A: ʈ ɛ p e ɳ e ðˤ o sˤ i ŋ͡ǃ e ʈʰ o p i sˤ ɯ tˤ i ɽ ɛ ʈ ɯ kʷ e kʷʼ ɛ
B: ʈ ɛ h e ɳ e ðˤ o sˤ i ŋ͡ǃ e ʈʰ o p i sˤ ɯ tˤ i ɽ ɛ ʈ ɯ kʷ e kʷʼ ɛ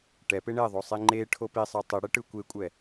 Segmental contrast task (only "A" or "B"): A